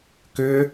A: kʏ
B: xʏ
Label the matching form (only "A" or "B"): A